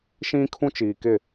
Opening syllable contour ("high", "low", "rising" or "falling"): high